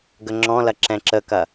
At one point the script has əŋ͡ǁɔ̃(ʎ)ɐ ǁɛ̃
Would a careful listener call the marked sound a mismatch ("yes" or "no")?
yes